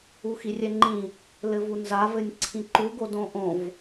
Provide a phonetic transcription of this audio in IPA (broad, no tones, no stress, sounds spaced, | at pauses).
u x i rʲ ɛ ŋ͡ǃ ĩ | l ɘ v u n z a v ɘ nʲ ǀʰ ĩ ǃ u ɡ o d õ ʔ õ v